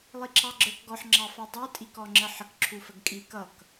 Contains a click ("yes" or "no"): yes